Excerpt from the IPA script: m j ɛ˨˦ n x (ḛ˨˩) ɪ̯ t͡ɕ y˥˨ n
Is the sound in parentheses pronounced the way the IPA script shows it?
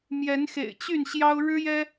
yes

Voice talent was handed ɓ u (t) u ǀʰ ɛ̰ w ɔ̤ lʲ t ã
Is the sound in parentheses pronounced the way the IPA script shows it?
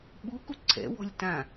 no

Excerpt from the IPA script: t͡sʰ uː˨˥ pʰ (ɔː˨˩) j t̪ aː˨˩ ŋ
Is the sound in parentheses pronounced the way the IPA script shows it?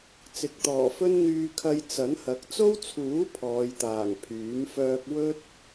no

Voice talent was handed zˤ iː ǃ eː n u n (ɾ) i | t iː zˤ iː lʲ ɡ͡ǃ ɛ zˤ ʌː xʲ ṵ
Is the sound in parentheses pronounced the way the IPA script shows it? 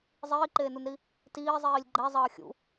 yes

